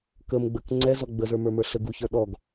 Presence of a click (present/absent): present